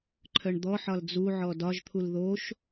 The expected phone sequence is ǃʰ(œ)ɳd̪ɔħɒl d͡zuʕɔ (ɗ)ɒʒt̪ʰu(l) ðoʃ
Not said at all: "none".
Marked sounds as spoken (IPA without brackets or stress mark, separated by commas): œ, d, l